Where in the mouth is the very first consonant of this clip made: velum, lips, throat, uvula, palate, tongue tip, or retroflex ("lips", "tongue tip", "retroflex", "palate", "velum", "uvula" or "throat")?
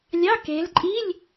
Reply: tongue tip